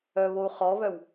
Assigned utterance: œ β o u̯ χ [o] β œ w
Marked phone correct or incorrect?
incorrect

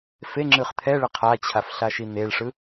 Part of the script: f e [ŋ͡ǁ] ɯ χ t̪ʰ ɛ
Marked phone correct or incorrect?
correct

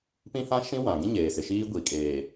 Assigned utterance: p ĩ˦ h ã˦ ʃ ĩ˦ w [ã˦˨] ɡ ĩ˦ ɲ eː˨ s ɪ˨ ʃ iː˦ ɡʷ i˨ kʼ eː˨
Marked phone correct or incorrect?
incorrect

